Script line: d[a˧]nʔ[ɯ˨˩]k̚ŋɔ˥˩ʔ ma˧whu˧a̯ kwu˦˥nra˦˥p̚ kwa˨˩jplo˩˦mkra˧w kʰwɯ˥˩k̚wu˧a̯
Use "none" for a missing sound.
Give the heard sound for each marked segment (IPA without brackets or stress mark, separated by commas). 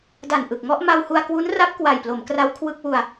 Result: a˨˩, ɯ˨˩